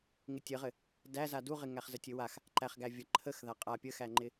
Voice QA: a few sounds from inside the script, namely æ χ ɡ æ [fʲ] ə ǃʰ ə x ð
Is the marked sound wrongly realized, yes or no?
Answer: yes